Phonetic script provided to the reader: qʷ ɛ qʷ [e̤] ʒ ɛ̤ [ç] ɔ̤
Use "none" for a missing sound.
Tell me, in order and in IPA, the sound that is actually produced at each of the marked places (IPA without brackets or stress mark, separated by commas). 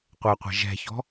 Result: ɛ̤, ç